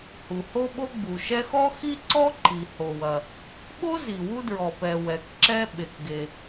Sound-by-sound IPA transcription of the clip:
h u˩ h o˥ ɓ o˥ ɡ͡b u˩ ʃ ɛ˥ x ɔ˥ x i˥ ǀ ɔ˥ ǃ i˩ h o˩ w ɐ˩ | ɓ o˥ z i˩ w u˥ d ɹ ɔ˩ p ɛ˩ w ɛ˩ k ǁ ɛ˥ ɓ e˩ k ɡ e˩

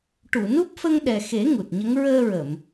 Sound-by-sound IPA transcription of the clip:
ʈ u˨˩˨ n u˦˥ p̚ f ə˧ ŋ ɗ ɛ˨˩ x e˨˩˦ ŋ u˨˩ t̚ ɲ ə˧˥ ŋ ɹ əː˧ ɹ ə˨˩˨ m

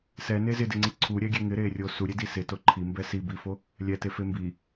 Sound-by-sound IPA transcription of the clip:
s ɛ n e z ɪ d ɪ ŋ͡ǀ i ǀʰ u ɾʲ ɛ ɡʲ e ŋ ɪ ɾ e rʲ o s u ɾʲ e d i s ɪ t o ǃʰ i m b ɛ s i b i f o | lʲ ɛ t e f e m b i

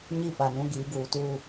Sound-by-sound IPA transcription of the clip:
ɲ i˦˨ p a˨ n ũ˦ ɡ iː˨˦ ɡ uː˨ t uː˦˨

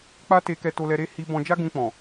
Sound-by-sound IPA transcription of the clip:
k͡p a˦ t e˧ k ɛ˧ t o˧ l ɛ˧ ɾ e˦ h i˧ b ɔ̃˧ d͡ʒ a˦ ɡ ũ˧ k͡p ɔ̃˨

